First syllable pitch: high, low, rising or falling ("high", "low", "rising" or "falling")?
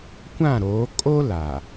falling